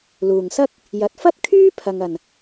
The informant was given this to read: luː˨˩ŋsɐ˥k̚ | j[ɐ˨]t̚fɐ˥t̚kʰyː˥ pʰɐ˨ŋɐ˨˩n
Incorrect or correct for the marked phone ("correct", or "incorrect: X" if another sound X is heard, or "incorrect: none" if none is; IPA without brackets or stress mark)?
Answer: correct